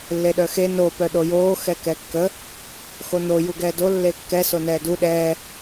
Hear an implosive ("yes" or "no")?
yes